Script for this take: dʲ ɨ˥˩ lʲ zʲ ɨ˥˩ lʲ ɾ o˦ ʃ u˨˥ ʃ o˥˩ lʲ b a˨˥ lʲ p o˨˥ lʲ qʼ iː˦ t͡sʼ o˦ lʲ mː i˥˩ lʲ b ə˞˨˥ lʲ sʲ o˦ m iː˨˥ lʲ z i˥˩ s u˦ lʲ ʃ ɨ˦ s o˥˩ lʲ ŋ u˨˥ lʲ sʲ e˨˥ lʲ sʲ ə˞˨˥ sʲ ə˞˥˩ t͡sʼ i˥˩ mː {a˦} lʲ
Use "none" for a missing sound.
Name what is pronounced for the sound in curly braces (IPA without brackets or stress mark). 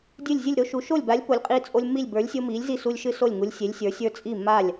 a˥˩